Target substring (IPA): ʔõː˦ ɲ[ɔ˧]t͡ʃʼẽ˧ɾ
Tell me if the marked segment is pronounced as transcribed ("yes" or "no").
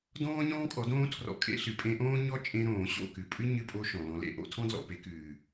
no